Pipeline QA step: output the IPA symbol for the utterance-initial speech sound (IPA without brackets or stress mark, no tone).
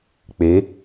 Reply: k͡p